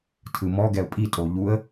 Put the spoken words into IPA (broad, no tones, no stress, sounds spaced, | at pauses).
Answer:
tʰ ɯ m ɔ ɡ ɛ ʊ̯ pʼ i tʼ o ʎ u ə̯